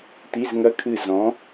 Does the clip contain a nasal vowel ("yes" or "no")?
yes